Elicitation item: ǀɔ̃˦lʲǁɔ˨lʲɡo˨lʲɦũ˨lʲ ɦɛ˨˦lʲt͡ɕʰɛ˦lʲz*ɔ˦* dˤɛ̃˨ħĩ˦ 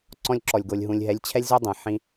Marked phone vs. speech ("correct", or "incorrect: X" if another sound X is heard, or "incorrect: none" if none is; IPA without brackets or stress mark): incorrect: o˦